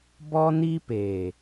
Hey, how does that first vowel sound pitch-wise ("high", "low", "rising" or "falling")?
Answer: high